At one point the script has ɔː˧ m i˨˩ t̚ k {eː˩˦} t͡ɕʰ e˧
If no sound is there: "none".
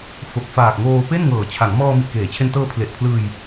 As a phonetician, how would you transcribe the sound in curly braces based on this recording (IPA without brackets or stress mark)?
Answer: eː˩˦